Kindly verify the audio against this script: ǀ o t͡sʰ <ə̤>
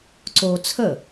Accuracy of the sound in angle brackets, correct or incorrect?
incorrect